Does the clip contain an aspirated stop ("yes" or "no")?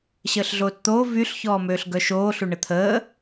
yes